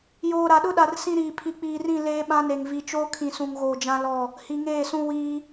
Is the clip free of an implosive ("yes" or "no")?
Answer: no